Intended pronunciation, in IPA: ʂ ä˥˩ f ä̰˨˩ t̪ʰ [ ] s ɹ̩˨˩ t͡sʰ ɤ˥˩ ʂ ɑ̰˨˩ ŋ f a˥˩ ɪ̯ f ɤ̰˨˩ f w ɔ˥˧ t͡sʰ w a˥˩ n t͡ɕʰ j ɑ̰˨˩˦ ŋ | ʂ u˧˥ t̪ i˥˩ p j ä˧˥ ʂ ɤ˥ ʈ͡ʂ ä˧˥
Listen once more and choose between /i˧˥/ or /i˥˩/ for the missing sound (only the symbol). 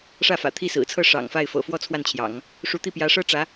i˥˩